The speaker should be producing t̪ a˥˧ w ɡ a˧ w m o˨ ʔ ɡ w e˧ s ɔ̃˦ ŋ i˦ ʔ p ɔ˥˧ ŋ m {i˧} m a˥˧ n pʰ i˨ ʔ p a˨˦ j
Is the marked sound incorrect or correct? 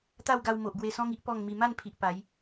correct